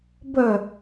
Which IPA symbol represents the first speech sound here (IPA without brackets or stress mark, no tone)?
b